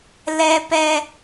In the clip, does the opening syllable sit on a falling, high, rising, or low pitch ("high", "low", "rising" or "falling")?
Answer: high